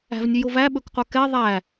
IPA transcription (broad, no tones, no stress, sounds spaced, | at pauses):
æ̤ v nʲ ʉ j o v æ ɓ ɵ k qʷ œ k ɛ ðˤ æ